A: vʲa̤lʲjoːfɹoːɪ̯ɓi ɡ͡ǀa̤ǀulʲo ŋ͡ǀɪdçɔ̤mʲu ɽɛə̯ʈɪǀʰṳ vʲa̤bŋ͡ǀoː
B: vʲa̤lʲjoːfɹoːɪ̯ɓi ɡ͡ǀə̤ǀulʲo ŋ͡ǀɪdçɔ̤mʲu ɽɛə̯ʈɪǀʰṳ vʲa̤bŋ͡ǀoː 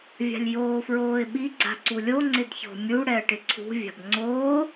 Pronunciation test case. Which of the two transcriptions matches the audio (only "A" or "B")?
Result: A